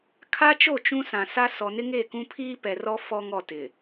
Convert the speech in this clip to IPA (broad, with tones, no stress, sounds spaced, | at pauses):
kʰ a˦ t͡ʃ o˦˨ t͡ʃ ũ˦ s ã˨ s a˦ s ɔ˨ n ɪ˦ ŋ e˦˨ k ũ˦ pʰ iː˦ p ɛ˨ r ɔ˦ f ɔ˦ ŋ ɔ˦˨ t ɪ˨